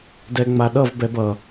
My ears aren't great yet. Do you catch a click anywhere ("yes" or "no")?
no